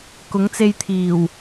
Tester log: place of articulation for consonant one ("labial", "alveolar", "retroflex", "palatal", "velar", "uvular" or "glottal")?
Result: velar